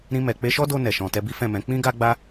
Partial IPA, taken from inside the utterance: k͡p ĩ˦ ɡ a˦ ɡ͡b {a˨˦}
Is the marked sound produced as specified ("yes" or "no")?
no